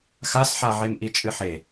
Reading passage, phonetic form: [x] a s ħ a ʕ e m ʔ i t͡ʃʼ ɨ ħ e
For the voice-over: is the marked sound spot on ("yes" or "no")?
yes